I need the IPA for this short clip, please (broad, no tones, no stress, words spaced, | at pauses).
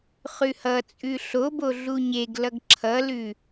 χʉhʌt͡sʼʉ ɬobo ɮuɲeɡlʌɡ ǁʰʌlʉ